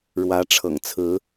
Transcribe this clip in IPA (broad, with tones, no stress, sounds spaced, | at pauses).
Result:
ɻ w ä˧˥ ʈ͡ʂʰ ɤ̰˨˩ ŋ t͡sʰ ɹ̩˧˥